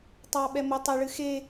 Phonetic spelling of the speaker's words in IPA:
tˤ ɑ ɓ ɛ m ʊ tˤ e ɭ ɨ x e

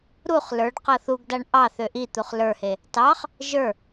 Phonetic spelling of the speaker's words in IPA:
ɾ u χ l ə˞ ɖ q ɤ θ u ɡ d a ɳ ʔ ɑ θ ø ʔ i t̪ u χ l ə˞ h e | t ɑ χ | ʒ ə˞

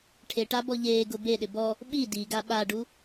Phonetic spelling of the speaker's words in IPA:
ʈʰ e ʈ a b ɔ ʎ eː ɡ ʊ b e ɗ ɪ b ɔ | ɓ i d i ɡ a ɓ a ɖ u

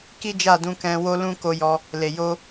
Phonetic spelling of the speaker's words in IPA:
k i˦ d͡ʒ a˦˨ d ũ˧ k ɛ̃˧ w o˦ l ũ˦ k o˧ j ɔ˧ | l e˨ j o˧

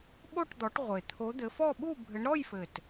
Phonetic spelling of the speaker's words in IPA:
ɓ o˥˧ ʈ d̪ ɔ˨˦ ʈ ʁʷ e˨˩ t̪ʰ o˨˦ d̪ ɘ˨˦ f ɔ˥˧ ɓ u˥˧ bʱ ɘ˨˦ ɳ ɾ ɔ˥˧ j f ɘ˨˩ t

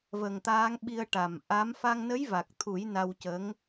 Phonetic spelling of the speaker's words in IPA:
v ə˨˩ ŋ t̪ aː˧˥ ŋ ɓ i˧ ə̯ ʈ a˨˩ m ʔ a˧˥ m f a˧ ŋ n ə˧˥ j v a˨˩ k̚ t̪ʰ u˨˩˦ j n a˧ w c ə˧˥ ŋ

